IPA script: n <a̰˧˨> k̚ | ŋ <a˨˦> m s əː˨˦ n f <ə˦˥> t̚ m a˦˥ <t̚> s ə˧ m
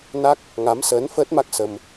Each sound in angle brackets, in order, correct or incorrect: incorrect: a˦˥, correct, incorrect: əː˦˥, incorrect: k̚

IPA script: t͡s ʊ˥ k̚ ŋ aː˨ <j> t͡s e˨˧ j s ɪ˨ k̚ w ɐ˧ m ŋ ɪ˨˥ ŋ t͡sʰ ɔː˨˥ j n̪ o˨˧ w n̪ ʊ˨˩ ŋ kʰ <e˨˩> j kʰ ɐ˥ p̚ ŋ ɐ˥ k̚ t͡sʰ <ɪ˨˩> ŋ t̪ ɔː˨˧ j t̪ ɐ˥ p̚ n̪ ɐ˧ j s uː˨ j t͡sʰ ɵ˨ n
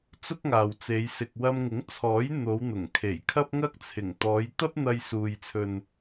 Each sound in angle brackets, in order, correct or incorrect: incorrect: w, correct, correct

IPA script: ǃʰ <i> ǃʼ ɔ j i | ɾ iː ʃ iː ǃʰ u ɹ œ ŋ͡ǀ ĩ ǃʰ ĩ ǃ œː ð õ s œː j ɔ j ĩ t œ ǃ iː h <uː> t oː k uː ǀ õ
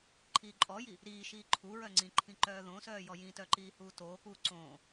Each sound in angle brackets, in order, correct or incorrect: incorrect: iː, correct

